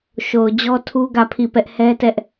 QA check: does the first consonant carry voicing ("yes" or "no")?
no